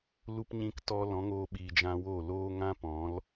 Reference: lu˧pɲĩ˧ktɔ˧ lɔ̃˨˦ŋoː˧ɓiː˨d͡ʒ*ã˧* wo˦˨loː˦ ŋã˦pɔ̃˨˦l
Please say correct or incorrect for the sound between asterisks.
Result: correct